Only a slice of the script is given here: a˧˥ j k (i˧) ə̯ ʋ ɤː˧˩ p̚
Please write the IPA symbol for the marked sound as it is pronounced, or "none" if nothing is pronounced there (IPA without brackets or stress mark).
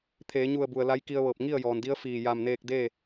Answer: i˧